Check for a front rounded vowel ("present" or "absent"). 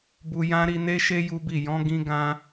absent